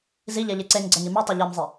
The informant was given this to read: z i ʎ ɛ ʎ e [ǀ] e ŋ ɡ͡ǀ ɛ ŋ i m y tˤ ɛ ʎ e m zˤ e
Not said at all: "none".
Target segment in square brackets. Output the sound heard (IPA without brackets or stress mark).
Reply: ǀ